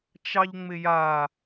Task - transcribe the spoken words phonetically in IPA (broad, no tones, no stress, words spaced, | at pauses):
t͡ʃɑʎŋ͡mɪja